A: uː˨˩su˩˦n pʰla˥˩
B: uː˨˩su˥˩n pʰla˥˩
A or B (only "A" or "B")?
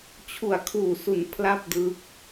A